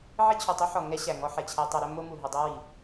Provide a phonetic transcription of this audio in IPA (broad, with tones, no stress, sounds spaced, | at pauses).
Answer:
ʕ i˦ t͡ɕʰ u˨ tˤ u˦ ħ ɔ˨ ŋ ɛ˦ ɕ æ˨ ŋ ɔ˧ ħ ɛ˨ t͡ɕʰ æ˧ tˤ ɐ˧ ɾ ɵ˦ m o˦ m u˨ ɦ ɵ˧ dˤ o˦ w i˨